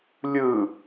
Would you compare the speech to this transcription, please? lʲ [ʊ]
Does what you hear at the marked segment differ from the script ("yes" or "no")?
yes